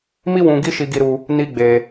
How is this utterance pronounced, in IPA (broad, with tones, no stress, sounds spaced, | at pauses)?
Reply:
m i˦ w ũ˧ ɡ i˦ ʃ i˧ ɡ i˧ ɾ u˧ | n i˦ ɡ͡b e˧